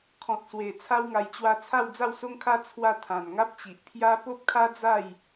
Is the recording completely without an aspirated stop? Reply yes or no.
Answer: no